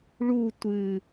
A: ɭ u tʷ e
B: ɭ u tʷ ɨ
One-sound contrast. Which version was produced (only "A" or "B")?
B